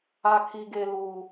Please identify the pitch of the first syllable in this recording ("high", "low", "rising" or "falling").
low